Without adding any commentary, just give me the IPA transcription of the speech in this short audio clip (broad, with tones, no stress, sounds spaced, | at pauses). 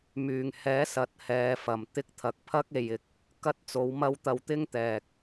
m yː˨˩ ŋ h ɛː˨˥ s ɐ˨ t̚ h ɛː˨˧ f ɐ˨˩ m t̪ ɪ˧ k̚ t̪ʰ ɐ˨ k̚ pʰ ɐ˥ k̚ e˨ j ɪ˨˥ k̚ | k ɐ˥ t̚ t͡s o˨˥ w m ɐ˥ w t̪ ɐ˧ w t̪ ɪ˥ ŋ t̪ ɛː˨ k̚